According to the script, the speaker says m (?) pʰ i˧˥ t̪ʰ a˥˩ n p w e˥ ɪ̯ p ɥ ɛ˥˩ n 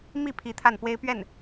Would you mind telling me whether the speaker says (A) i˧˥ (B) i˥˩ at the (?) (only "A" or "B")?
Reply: B